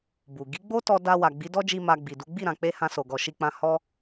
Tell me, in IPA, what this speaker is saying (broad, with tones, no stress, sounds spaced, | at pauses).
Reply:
b u˨ ɡ i˨˦ ɡ͡b o˦ t ɔ˧ d a˧ w a˨ ɡ͡b i˨˦ d ɔ˦ d͡ʒ i˧ m a˧ ɡ͡b i˨ d u˨˦ ɡ͡b i˦˨ ɾ ã˨ k͡p e˧ h ã˧ s o˨ ɡ ɔ˨ ʃ i˧ k͡p ã˧ h ɔ˧